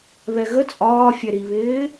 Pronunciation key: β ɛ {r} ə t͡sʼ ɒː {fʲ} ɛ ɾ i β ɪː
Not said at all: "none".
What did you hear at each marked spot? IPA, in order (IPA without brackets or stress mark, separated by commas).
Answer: ɣ, fʲ